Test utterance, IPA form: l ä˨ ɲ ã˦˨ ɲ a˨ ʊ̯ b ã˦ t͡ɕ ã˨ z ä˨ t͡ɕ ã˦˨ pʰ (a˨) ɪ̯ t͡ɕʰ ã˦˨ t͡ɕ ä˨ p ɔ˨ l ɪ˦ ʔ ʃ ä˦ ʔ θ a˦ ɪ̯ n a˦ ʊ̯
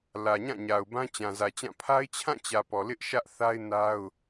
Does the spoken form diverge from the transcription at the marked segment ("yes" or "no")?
yes